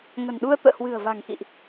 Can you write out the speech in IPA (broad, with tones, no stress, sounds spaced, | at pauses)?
ŋ ə̤˨˩ n ɗ u˧ ə̯ t̪ ə̰ː˧˨ h w ɨ̤˨˩ ə̯ v a̤˨˩ ŋ x ḭ˧˨ ʔ